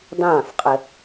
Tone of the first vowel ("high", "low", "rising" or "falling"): falling